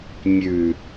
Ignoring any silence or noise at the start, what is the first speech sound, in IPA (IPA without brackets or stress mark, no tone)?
mʲ